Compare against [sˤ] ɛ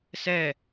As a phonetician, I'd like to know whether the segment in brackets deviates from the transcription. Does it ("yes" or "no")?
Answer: yes